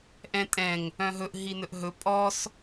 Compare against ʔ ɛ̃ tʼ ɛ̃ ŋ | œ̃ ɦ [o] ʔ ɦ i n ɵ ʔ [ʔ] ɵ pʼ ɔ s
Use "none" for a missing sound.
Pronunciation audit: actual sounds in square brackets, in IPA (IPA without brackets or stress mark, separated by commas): ɵ, ɦ